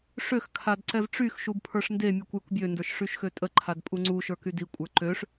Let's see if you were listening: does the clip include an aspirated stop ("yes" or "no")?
yes